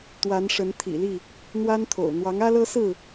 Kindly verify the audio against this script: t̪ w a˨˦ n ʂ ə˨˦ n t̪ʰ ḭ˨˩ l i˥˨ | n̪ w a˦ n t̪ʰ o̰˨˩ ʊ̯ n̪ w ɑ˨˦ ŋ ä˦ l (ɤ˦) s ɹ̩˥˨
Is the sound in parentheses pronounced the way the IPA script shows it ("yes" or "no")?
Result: yes